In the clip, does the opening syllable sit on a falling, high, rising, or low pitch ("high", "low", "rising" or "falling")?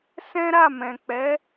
high